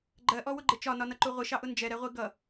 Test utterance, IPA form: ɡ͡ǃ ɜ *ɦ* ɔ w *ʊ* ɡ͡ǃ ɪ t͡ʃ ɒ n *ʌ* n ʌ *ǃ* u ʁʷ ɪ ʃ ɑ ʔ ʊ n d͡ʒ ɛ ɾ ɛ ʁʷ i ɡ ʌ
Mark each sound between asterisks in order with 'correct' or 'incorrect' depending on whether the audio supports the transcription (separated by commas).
incorrect, correct, incorrect, correct